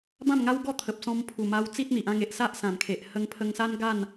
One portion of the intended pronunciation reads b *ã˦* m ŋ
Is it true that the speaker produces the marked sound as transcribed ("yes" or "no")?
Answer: no